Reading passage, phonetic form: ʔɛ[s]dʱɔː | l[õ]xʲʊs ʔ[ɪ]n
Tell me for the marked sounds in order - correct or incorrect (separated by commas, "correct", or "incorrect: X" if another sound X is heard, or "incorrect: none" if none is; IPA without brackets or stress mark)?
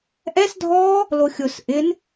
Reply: correct, incorrect: o, correct